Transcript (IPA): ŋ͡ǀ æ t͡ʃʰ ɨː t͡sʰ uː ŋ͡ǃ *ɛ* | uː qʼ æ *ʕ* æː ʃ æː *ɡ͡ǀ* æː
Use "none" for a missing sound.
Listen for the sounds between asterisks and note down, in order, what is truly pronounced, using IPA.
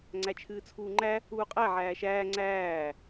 æ, ʕ, ŋ͡ǀ

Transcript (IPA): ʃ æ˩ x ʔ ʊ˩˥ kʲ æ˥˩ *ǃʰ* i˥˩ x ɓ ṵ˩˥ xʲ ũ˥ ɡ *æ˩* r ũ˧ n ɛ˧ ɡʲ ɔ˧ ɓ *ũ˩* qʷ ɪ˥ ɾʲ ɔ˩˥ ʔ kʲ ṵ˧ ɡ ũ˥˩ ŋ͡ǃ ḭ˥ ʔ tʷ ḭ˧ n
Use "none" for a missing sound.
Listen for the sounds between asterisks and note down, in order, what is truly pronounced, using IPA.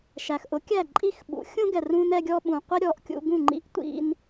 ǃʼ, ɛ˩, ũ˩

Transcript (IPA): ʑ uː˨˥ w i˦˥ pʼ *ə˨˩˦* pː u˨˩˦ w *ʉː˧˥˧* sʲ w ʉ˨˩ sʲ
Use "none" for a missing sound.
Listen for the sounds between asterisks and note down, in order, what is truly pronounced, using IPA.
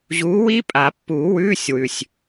a˨˩˦, ʉː˧˥˧

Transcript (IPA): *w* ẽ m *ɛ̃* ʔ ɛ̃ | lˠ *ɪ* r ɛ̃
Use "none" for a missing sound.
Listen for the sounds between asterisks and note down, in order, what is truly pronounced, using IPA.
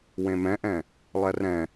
w, ɛ̃, ɛ

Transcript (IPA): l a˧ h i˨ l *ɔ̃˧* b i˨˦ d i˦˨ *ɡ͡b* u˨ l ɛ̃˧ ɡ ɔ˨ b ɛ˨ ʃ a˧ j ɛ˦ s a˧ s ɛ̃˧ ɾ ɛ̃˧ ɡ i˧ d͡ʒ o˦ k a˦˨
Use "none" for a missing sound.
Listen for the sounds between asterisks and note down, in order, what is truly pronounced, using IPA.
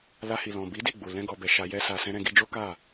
ɔ̃˨, ɡ͡b

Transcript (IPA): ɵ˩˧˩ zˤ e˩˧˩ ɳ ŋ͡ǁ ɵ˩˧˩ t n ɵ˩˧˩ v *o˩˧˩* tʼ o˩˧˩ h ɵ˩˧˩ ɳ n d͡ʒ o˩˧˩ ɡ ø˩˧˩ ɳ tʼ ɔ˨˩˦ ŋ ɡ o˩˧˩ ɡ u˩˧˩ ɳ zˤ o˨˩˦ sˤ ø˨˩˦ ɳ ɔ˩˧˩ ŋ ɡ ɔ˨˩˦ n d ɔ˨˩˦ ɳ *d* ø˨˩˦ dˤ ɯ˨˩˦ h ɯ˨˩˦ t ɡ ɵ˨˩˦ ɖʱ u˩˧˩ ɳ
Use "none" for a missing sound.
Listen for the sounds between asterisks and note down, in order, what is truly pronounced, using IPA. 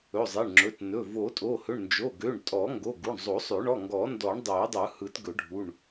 o˨˩˦, dˤ

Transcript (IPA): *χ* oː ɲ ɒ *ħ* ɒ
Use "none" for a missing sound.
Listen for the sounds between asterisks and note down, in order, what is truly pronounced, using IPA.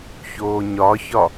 ç, ç

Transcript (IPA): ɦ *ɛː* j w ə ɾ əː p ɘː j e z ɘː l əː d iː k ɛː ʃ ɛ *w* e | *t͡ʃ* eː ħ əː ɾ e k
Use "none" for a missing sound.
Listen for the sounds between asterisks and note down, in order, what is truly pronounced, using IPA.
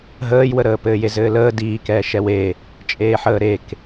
əː, w, t͡ʃʼ

